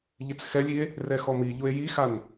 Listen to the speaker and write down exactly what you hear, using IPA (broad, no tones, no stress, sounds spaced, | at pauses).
ʎ ɪ t͡s x ɛ lʲ i e̯ | r ɛ x ɔ m i ʎ ʊ e̯ j i x a n